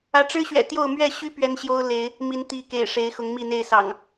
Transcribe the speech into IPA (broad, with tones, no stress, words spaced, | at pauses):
ä˨˦ʈ͡ʂɻ̩˦ ɕɥɛ̰˨˩t̪jo˥˨ʊ̯ mɥɛ˥˨ɕy˦ pɥɛ˦nɕjo˦ʊ̯le˨˦ɪ̯ | mi˨˦n t̪i˨˦kḛ˨˩ɪ̯ ʂe˨˦ɪ̯xʊ˨˦ŋ mi˥˨n̪e˥˨ɪ̯ sɑ̰˨˩ŋ